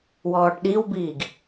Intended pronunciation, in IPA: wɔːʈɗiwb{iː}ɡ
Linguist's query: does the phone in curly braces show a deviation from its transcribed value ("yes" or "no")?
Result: no